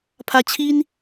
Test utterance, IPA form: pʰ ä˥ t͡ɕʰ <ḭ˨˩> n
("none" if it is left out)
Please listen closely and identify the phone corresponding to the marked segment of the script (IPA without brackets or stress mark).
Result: i˥